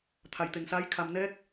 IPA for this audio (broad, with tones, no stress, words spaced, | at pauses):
t̪ʰa˩jt̪e˩ŋsaː˧˥j kʰa˩mnɛː˧˥k̚